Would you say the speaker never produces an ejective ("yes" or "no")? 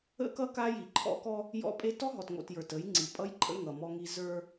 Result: no